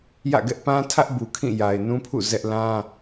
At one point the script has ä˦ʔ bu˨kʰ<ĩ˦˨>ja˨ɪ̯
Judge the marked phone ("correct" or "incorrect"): correct